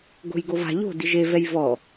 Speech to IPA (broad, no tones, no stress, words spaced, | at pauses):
ɡo̤jɡova̤ ʎo̤ diʒe vɛjvɔ